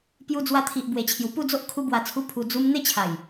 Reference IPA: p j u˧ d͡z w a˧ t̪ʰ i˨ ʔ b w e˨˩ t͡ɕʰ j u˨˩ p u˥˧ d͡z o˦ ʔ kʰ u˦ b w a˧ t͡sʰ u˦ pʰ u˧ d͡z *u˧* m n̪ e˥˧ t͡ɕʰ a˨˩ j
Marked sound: incorrect: u˦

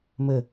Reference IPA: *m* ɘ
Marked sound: correct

